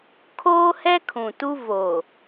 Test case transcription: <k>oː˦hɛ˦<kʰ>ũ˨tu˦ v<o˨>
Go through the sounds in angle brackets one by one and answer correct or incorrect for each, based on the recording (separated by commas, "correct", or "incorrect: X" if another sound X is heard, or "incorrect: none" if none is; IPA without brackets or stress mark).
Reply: incorrect: kʰ, correct, correct